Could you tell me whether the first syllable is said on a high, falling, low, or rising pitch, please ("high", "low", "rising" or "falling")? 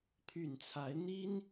low